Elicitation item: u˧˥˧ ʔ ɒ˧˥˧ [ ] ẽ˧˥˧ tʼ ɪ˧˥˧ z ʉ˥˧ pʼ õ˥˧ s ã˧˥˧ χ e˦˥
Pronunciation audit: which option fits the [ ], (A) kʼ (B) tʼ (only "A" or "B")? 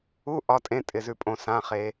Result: B